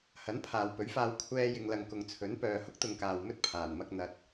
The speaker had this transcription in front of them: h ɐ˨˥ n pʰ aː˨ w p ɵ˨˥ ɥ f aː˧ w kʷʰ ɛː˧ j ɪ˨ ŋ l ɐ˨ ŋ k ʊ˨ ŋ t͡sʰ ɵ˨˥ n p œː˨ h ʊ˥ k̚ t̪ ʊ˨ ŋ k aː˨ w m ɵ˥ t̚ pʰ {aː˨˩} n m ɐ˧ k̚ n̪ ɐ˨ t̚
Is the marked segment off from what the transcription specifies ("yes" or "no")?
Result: no